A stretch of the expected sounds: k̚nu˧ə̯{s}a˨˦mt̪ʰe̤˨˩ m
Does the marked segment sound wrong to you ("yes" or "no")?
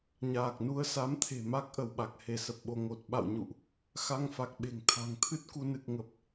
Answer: no